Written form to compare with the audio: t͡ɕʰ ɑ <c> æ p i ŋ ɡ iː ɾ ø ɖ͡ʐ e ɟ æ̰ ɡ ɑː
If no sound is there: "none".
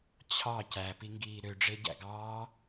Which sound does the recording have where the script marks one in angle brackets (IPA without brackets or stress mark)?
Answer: c